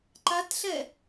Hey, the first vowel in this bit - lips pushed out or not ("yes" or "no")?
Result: no